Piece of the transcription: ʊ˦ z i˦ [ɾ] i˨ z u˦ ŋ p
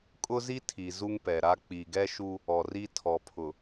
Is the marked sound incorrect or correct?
incorrect